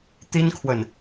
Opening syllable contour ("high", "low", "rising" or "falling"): high